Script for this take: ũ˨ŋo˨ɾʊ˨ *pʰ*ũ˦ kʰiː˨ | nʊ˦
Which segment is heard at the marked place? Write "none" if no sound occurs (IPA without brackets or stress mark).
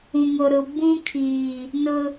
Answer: b